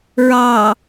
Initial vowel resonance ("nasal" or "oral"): oral